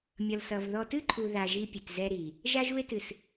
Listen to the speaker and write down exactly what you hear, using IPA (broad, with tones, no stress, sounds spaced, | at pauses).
mʲ ʌ˨ l s ʌ˨ v ð ɔ˨ t ɨ˦ ǃʰ u˨ ð a˨ ʒ i˦ pʲ ɨ˨ t z ɛ˦ ɾ i˨ | ʒ a˦ ʒ u˦ e̯ t ɨ˨ s